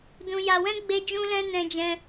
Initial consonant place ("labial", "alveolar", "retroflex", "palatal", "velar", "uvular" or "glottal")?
alveolar